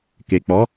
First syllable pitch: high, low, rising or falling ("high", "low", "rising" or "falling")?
low